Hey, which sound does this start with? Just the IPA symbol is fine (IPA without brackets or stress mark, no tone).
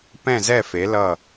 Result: p